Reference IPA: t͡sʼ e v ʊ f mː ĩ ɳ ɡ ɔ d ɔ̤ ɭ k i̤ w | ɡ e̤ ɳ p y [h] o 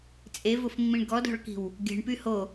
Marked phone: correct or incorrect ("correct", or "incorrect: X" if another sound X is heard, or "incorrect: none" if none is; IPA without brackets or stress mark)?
correct